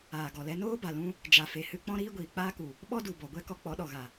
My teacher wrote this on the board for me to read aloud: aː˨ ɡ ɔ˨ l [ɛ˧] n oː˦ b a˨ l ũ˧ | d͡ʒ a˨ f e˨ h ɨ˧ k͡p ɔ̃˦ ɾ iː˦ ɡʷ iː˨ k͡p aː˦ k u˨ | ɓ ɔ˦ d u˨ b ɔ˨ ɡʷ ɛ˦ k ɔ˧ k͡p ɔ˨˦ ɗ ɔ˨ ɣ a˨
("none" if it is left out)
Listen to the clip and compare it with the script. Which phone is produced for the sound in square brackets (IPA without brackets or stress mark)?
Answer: ɛ˧